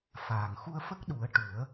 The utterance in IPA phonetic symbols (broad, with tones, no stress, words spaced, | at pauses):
faː˨˩ŋ xu˧ə̯fə˦˥k̚ɗu˨˩˦ə̯ ʈu˨˩˦ə̯